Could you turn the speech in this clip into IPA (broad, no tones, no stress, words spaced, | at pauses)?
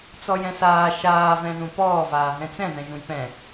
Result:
t͡sɔjɛ̃saː ʃaː vɛ̃ðũpɔː vaːɦɛ̃t͡sɛ̃ ðɛ̃ʒũjpɛ̃